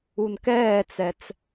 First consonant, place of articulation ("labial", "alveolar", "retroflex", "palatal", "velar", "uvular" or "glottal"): alveolar